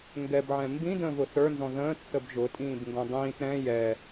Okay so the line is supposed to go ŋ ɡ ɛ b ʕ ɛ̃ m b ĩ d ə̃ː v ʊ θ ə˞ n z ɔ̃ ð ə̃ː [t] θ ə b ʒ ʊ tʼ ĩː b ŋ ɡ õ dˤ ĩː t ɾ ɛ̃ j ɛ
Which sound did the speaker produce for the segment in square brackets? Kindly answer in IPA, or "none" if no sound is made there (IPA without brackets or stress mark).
t